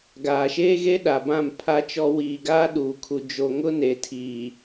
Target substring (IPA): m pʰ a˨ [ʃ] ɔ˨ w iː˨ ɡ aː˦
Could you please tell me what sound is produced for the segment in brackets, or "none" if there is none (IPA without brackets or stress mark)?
t͡ʃ